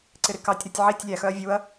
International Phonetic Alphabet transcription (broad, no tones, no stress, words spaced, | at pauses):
ǀɪɾɪkɑtʲ ɾotʲʕitʲ lʲæxœɐ̯ vʲuɐ̯